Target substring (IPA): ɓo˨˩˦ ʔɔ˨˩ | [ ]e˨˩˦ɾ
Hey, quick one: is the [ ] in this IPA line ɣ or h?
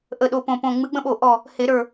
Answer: h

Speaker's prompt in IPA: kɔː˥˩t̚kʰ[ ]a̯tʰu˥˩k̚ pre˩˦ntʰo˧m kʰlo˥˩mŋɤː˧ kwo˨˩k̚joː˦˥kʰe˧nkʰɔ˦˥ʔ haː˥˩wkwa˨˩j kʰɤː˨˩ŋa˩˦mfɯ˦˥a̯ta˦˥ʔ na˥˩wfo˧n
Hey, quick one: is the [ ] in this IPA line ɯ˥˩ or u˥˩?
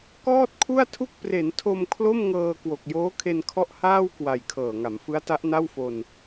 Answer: u˥˩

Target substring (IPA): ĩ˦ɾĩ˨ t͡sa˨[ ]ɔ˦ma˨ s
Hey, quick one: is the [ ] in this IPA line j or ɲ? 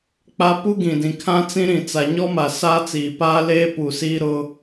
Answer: ɲ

